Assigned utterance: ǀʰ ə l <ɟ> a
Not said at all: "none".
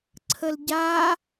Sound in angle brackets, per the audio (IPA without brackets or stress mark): ɟ